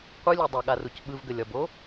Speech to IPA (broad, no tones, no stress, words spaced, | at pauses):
qʷɯlʲɔ dˤɐɠaruc ɓɯvɡəlʲɒbo